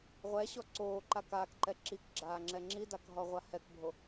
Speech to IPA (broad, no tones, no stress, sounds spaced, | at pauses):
ʁʷ ɛ ɕ ɔ ǀ oː ǃ a k aː k ǃ ɛ ǁ i k ɡ͡ǁ aː ŋ͡ǁ ɛ ŋ͡ǁ i d a k ɦ ɔ ʁʷ a h ɛ k bʱ o